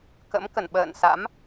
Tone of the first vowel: rising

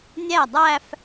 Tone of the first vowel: falling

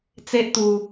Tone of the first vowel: high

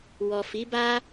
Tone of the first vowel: low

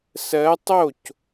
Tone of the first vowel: rising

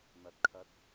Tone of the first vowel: rising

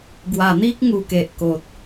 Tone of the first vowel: low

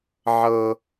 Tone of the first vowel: high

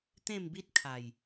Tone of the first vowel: falling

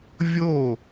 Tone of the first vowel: falling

